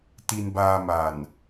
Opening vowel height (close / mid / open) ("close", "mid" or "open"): close